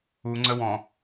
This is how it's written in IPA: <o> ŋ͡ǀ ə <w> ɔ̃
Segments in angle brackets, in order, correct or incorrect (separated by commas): incorrect, correct